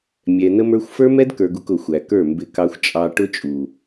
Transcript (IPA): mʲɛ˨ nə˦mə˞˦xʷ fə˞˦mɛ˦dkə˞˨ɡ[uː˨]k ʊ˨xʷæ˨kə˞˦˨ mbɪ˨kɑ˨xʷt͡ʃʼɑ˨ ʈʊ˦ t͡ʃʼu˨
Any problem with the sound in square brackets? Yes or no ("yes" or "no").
yes